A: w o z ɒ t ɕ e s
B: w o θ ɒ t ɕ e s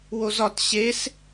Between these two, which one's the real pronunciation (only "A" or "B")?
A